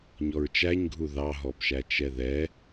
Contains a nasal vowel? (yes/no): no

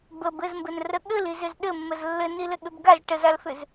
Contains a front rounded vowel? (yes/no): yes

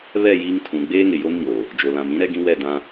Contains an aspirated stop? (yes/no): yes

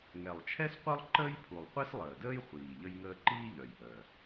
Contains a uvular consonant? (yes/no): yes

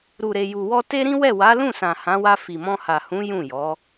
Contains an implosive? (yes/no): no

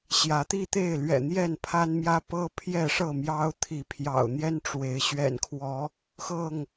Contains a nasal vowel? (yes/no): no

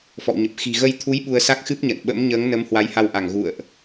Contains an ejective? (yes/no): no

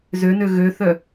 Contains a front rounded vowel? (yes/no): yes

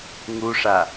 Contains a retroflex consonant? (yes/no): yes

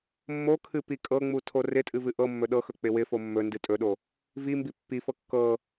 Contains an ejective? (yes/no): yes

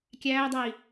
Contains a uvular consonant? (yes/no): no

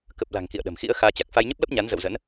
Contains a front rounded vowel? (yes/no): no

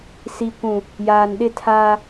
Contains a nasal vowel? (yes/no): yes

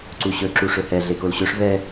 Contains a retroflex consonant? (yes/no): yes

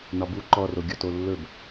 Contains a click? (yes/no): yes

